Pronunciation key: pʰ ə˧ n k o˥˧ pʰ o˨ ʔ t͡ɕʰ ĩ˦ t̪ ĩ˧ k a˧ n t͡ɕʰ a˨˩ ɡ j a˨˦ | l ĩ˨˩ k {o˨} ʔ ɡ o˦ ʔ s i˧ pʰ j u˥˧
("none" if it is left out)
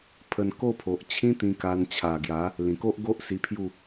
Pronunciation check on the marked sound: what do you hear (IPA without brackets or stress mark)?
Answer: o˦